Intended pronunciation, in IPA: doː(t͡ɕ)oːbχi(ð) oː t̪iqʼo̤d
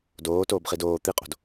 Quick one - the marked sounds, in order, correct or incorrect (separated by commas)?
incorrect, incorrect